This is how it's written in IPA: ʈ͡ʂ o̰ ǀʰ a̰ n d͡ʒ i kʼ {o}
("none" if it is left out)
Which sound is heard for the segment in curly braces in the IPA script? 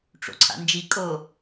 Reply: o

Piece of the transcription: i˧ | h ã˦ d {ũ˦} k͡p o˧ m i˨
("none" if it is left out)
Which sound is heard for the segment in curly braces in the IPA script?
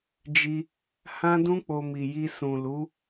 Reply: ũ˦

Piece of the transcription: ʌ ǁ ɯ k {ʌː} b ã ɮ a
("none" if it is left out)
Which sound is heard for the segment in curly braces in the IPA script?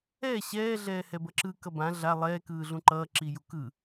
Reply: ʌ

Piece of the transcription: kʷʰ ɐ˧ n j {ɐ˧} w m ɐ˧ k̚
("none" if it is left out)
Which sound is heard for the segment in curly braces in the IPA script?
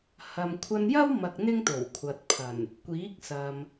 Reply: ɐ˥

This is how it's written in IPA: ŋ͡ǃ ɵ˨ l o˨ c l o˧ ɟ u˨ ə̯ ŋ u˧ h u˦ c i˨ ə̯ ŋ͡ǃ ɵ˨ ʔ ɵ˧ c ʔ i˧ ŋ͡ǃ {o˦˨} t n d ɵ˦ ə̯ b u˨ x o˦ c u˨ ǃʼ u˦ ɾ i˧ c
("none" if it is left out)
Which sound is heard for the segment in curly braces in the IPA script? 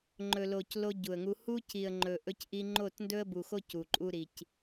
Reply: o˦˨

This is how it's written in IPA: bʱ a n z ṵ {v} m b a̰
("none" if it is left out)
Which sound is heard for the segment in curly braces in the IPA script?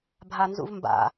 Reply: v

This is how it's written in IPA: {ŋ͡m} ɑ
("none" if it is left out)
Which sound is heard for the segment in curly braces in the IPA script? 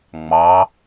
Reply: ŋ͡m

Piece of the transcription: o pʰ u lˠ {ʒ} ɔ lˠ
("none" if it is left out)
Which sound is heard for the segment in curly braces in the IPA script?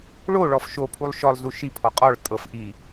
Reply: ʃ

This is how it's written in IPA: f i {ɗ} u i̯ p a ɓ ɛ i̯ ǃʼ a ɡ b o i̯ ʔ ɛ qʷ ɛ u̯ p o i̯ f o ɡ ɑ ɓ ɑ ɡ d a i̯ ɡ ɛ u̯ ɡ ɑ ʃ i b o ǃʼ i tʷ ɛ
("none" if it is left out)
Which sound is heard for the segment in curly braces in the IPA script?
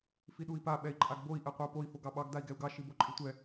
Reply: ɗ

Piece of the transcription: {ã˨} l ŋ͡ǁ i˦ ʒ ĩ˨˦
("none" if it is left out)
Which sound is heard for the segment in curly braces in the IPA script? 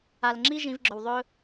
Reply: a˨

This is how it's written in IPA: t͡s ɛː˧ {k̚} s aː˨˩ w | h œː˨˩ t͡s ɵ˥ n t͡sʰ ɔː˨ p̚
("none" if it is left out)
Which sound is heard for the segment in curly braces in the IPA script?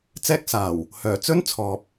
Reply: k̚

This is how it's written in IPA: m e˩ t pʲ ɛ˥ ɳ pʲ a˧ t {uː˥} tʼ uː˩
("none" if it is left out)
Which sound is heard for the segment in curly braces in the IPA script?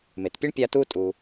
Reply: uː˧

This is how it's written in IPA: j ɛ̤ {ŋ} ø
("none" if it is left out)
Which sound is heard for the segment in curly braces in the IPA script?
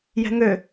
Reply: ŋ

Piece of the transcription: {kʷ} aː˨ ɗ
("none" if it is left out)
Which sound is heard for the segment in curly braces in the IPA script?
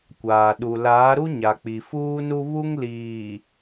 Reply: kʷ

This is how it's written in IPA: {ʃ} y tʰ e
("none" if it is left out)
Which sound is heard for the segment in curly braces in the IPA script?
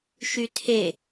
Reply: ʃ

